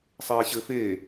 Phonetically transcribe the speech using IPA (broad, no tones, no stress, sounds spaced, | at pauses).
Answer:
sˤ eː ɕ ɘ f eː